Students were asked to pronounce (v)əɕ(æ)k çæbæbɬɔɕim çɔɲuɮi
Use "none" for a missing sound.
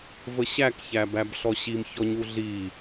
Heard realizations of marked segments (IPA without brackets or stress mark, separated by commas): v, æ